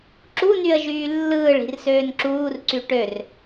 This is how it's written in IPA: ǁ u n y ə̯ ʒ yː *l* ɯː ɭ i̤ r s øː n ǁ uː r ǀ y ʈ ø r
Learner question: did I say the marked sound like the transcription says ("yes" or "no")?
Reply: no